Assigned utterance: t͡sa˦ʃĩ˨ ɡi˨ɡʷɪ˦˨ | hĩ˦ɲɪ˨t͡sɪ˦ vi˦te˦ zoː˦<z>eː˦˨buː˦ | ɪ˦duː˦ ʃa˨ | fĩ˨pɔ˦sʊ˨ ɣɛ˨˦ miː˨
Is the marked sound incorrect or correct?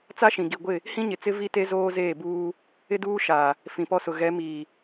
correct